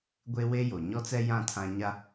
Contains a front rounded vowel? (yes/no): no